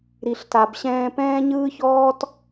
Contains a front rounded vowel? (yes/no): no